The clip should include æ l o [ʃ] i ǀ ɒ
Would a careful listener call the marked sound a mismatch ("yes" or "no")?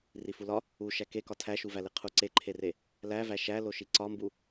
no